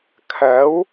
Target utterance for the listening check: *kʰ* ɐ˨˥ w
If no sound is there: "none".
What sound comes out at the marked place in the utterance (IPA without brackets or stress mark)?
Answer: kʰ